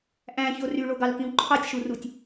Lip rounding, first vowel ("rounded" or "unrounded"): unrounded